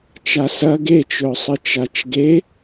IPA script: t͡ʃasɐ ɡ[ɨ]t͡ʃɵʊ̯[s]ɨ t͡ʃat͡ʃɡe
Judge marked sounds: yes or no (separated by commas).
no, no